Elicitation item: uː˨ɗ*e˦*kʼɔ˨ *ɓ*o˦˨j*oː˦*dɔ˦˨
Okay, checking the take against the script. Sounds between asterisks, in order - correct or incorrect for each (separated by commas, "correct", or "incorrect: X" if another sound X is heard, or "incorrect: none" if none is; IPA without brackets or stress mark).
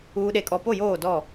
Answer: incorrect: e˨, incorrect: p, incorrect: oː˦˨